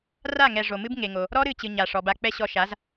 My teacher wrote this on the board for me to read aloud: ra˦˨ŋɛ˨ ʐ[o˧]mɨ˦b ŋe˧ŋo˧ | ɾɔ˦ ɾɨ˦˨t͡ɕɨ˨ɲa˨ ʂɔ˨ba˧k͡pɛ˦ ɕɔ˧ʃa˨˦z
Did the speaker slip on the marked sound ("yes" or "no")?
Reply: yes